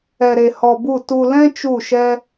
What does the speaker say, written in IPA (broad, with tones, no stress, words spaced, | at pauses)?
ɛ˧ɾe˧hɔ˧bu˦˨ tu˧lɛ̃˦ t͡ʃu˦˨ʃɛ˦